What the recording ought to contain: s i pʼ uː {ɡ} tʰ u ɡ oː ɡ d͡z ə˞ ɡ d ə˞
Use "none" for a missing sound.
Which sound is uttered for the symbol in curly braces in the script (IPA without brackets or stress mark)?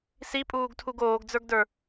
ɡ